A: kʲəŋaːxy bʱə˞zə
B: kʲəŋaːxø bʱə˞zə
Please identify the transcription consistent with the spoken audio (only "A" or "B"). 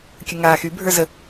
A